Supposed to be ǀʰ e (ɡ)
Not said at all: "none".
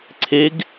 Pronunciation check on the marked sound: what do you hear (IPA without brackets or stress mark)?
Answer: ɡ